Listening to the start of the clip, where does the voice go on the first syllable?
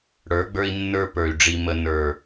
rising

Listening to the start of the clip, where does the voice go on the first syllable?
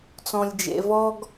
low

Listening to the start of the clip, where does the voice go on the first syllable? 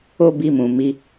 high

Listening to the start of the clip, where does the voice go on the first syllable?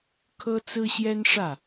high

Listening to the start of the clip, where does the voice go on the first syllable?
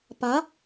rising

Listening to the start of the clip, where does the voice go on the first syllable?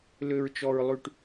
low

